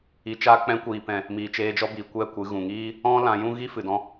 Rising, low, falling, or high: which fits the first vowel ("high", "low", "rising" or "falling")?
low